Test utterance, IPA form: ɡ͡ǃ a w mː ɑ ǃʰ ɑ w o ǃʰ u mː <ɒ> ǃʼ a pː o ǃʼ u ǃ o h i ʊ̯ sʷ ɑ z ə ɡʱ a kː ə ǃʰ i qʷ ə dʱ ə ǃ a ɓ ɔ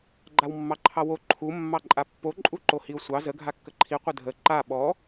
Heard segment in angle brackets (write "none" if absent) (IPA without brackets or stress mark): ɑ